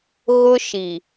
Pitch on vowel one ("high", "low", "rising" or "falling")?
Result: high